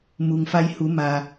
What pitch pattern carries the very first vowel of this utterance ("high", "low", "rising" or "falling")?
low